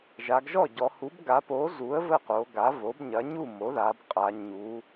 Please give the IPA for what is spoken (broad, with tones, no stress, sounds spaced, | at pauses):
ʒ a˩˧ ɡ ʒ ɔ˥˩ ɟ ɔ˩˧ h u˩˥ b ɡ a˩˥ p o˩˥ z u˩˥ ə̯ v ə˥˩ q o˩˧ ɡ a˩˥ v o˩˥ b ɲ ɐ˩˥ ɲ u˥˩ m o˩˥ ð a˩˧ b qʼ a˩˧ ɲ u˩˧